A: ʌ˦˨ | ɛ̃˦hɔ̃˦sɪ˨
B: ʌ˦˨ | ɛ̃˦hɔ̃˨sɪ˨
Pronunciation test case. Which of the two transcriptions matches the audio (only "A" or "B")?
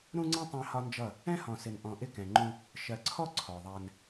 B